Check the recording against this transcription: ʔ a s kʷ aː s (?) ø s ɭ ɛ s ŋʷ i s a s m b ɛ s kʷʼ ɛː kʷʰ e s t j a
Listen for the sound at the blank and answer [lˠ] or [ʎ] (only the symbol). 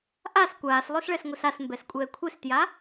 lˠ